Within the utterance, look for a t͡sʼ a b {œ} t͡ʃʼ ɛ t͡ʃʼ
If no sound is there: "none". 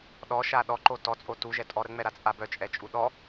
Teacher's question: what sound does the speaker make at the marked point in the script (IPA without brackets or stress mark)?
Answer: œ